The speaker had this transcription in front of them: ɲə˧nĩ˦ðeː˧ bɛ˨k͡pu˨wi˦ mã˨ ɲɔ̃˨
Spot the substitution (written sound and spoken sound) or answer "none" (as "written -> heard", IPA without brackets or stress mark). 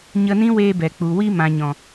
ð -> w